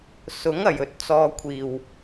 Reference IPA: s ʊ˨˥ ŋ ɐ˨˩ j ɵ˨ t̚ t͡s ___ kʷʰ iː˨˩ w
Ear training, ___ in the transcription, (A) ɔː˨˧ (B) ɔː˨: B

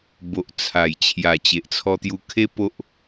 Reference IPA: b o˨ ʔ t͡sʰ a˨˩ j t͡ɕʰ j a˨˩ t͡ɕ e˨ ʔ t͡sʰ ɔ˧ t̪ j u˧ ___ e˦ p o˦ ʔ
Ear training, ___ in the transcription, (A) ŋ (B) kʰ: B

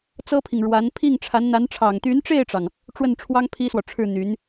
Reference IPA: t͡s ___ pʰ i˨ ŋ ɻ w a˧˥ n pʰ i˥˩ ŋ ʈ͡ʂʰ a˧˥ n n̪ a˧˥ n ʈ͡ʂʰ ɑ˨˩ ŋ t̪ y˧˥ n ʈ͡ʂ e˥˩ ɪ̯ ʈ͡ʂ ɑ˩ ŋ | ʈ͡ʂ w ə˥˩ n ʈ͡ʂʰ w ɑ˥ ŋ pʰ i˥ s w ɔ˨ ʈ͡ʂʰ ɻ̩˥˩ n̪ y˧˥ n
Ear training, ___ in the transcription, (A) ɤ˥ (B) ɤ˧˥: A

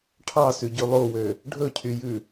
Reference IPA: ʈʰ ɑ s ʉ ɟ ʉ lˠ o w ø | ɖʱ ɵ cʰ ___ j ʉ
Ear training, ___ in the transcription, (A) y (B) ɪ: A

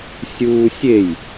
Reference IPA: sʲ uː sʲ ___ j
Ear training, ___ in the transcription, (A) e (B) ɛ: A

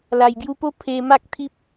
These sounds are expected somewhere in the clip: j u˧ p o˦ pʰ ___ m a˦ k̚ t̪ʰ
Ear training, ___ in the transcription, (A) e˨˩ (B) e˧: B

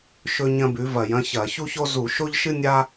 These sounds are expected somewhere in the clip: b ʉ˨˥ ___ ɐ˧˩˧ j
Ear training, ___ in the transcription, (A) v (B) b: A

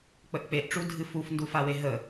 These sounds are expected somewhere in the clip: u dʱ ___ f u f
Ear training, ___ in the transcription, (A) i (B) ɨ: B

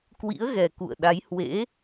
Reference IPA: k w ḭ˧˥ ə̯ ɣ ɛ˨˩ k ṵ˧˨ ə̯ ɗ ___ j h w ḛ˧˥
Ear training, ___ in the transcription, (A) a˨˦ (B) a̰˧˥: A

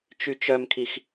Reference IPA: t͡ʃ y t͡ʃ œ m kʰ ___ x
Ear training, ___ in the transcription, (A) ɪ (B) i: B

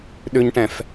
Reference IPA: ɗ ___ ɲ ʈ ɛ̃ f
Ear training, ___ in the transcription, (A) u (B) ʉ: B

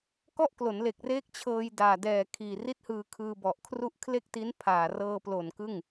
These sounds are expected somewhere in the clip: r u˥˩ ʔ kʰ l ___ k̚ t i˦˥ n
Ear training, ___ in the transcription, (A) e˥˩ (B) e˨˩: A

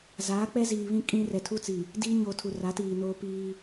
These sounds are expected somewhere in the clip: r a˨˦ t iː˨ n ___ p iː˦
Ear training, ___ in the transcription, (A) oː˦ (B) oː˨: A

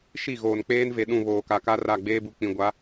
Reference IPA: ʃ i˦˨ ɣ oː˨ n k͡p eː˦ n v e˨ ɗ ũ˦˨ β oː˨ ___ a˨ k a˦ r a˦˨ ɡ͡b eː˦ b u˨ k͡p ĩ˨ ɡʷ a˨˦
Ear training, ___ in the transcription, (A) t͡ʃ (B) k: B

